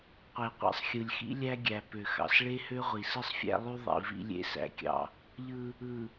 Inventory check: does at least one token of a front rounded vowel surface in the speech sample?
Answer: yes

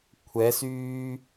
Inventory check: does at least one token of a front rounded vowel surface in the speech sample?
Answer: yes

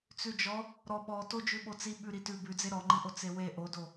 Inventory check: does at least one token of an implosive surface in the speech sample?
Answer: yes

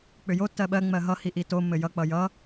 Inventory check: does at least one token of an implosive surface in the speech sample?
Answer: yes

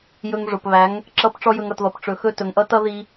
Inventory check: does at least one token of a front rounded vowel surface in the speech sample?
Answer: no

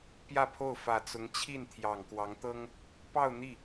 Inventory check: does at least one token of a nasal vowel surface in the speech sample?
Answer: no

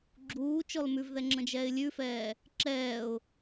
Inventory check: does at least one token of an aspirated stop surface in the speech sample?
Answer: no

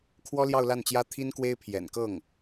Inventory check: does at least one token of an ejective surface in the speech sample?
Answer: no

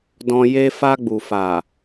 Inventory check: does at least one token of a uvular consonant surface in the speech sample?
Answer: no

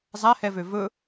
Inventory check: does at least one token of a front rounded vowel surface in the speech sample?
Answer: yes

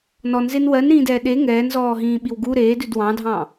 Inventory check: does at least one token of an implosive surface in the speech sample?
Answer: yes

